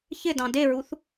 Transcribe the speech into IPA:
ç ɪ d ɑ̃ d e ɹ u θ

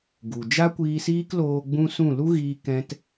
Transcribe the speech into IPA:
ɡ u˨ d͡ʒ a˦ kʷ iː˧ s iː˦ k l oː˧ ɡ͡b ũ˦ s ũ˦˨ l u˦ ɣ iː˧ k ɛ̃˧ t

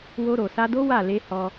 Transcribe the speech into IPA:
w o˧ ɾ o˨ s a˧ d o˦ w a˦˨ l e˧ h ɔ˧

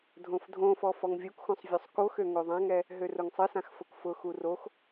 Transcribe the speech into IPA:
dʱ õ f dʱ õ f ɔ f ɔ ŋ vʲ u k x õ sˤ vʲ o sˤ k o x ø ŋ o ðˤ ã ŋ ɛ | ɦ ø r ʊ ŋ sˤ ɨ s ã x f ʊ k f ʊ x u r o x

